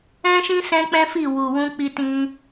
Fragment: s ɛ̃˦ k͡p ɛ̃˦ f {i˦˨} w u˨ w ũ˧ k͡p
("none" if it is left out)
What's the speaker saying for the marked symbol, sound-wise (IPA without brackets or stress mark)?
i˦˨